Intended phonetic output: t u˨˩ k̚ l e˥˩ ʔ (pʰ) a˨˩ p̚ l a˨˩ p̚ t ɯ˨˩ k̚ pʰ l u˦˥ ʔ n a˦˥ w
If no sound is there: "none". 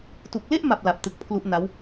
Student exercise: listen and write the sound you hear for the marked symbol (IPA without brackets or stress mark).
m